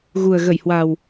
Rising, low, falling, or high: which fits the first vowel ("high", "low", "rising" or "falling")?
low